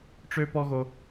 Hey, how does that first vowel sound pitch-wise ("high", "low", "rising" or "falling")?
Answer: high